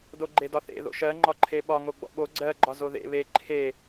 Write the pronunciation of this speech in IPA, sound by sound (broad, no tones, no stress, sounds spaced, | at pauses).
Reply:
d o ɡ͡ǃ e d ɒ θ ḛ ð o̰ ʃ ɜ ŋ͡ǃ ɒ ǃʰ e ɓ ɒ ŋ o ɡ͡b ɔ̰ ɓ o ɡ͡ǀ ɜ ɡ͡ǃ ɒ z o ð ḛ β e ǃʰ e